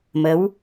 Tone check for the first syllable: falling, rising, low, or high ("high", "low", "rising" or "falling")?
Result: rising